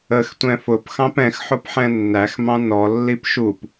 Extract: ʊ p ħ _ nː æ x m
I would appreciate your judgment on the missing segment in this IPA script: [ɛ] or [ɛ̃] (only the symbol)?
ɛ̃